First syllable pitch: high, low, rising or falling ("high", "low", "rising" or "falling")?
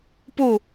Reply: falling